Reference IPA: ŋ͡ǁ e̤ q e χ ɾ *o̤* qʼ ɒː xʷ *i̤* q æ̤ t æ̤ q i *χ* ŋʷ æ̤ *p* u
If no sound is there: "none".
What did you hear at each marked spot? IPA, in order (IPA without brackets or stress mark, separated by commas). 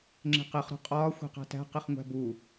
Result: o̤, i̤, χ, b